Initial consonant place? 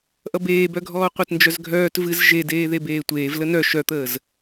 glottal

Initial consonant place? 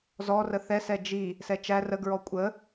alveolar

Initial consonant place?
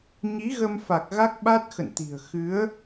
palatal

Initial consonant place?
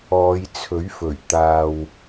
palatal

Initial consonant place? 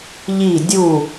palatal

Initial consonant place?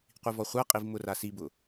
uvular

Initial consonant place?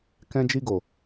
velar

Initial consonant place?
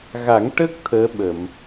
velar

